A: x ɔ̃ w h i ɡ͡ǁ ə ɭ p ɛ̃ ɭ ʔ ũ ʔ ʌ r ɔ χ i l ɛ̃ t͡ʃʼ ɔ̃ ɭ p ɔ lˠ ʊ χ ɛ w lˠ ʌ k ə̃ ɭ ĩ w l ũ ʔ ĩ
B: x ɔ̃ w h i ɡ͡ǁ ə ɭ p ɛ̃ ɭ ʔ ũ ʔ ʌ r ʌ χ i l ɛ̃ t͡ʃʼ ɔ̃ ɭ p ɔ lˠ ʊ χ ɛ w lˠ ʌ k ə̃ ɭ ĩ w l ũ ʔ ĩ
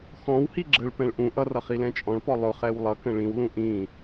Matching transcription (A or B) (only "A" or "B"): B